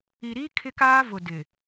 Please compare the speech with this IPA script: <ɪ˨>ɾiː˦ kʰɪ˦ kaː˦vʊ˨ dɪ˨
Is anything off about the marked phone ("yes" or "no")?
yes